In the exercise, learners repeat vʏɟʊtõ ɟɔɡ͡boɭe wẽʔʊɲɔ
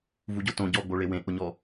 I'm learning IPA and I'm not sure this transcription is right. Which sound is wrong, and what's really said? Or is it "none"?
ʏ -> u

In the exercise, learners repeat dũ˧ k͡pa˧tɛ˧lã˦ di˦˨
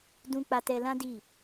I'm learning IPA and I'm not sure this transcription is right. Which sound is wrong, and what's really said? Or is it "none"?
none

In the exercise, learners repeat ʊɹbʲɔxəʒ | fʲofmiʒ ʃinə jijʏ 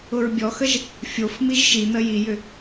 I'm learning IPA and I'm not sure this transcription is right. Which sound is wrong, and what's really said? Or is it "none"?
none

